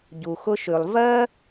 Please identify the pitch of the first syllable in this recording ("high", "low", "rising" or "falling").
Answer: low